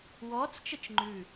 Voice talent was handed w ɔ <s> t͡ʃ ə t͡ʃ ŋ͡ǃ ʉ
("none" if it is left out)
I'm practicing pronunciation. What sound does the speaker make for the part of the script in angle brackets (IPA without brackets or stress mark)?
t͡s